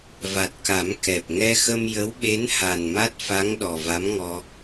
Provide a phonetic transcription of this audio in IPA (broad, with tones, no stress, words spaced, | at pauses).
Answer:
va˨˩t̚ka˨˩˦m kɛ˨˩p̚ ŋɛ˧xə˧m jə˧˥wɓe˧˥n ha˨˩nma˦˥t̚fa˧˥ŋ ɗɔ˨˩va˧˥mŋɔ˧